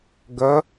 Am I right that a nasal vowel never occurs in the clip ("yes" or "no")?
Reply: yes